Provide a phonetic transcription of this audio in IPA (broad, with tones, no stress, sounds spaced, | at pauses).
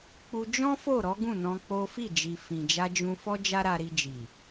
k͡p u˧ d͡ʒ ɔ̃˦ f o˦˨ ɾ ɔ˨˦ ɡ ũ˦˨ n ɔ̃˧ k͡p o˦ f i˦˨ d͡ʒ i˨ f ĩ˨ d͡ʒ a˧ d͡ʒ ũ˧ f ɔ˦ d͡ʒ a˦ ɾ a˧ ɾ i˧ d͡ʒ i˨